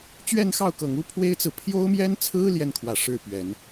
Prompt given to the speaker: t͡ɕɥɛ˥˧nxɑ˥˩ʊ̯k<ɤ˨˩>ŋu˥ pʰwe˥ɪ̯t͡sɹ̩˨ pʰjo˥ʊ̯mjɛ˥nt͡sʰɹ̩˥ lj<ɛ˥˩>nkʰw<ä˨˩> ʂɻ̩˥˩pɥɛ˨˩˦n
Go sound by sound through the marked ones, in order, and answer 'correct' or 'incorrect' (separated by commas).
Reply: correct, correct, correct